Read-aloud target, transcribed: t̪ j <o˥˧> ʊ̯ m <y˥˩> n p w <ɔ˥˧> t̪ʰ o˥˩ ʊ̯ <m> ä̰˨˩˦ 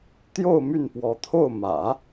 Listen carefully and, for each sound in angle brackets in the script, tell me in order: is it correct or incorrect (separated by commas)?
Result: correct, correct, incorrect, correct